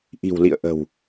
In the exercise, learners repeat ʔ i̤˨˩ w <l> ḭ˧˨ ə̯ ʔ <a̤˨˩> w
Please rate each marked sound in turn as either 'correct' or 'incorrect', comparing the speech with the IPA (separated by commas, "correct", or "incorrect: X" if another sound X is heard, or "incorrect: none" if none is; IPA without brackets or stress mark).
correct, incorrect: ə̤˨˩